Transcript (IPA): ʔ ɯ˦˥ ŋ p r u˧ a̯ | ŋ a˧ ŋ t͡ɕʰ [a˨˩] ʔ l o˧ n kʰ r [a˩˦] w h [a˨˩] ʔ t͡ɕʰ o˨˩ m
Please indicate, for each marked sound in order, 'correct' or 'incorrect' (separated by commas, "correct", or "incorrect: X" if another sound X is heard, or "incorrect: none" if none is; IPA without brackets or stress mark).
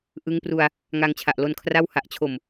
correct, incorrect: a˥˩, correct